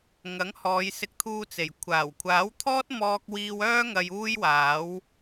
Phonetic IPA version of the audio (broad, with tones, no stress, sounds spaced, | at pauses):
ŋ ɐ˨˥ ŋ h ɔː˨˧ j s ɪ˧ k̚ t̪ʰ uː˧ t͡s e˨˩ j kʷʰ aː˨˩ w kʷʰ aː˨˥ w t̪ʰ ɔː˥ t̚ m ɔː˥ k̚ w iː˥ w œː˥ ŋ ɐ˧ j uː˥ j w aː˨˥ w